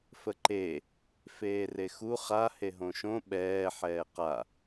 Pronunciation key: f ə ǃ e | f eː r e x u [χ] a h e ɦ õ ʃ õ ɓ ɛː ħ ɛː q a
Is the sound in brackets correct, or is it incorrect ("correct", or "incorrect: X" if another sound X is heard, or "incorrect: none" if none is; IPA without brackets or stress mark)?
correct